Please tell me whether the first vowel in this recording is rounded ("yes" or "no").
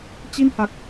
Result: no